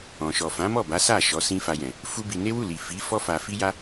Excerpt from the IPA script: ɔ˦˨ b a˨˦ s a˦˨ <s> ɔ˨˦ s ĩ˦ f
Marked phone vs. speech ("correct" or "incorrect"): incorrect